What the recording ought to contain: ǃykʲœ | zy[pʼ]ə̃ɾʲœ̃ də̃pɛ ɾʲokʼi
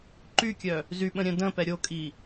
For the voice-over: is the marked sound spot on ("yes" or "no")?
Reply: no